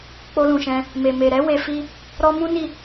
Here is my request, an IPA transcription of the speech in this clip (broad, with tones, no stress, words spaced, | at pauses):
k͡po˧lũ˨ʃɛ̃˧ | me˨ me˨ɾɛ˨˦ we˧fi˦ | ɾɔ˧mũ˦ ni˦˨